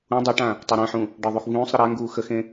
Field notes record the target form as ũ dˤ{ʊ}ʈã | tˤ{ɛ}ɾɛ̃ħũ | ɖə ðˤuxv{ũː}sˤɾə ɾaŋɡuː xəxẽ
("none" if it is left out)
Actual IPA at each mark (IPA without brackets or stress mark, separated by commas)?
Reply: u, ɛ, ũː